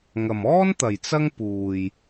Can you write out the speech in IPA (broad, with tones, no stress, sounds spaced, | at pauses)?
ŋ ɐ˨ m ɔː˥ n t̪ ɐ˨ j t͡s ɐ˥ ŋ p uː˨ j